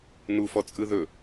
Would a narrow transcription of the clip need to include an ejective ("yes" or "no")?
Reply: yes